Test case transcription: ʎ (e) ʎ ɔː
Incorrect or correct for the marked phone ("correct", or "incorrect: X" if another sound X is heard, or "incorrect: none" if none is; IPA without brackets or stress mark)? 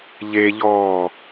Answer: correct